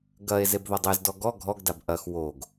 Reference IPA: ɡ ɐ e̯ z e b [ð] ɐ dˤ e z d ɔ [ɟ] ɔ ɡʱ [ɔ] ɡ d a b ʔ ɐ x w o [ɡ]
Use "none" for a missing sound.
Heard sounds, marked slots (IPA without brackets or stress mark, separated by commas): ð, ɡ, ɔ, ɡ